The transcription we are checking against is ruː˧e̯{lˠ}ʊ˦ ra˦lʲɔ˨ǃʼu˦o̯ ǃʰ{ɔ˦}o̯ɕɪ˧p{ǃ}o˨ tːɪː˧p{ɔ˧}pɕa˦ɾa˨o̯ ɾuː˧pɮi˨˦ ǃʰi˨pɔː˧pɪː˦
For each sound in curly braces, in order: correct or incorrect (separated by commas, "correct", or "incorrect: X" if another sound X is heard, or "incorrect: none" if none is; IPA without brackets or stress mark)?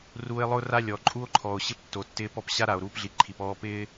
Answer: correct, incorrect: ɔ˨, incorrect: tː, correct